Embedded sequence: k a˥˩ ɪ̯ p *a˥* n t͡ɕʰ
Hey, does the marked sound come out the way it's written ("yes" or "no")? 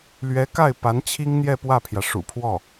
no